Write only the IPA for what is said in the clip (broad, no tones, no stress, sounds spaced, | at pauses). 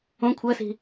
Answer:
õ kʷʰ ɜ s i̤